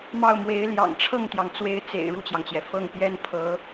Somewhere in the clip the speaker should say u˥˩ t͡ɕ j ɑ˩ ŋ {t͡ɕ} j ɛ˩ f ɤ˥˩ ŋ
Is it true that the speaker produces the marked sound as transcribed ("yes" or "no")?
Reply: yes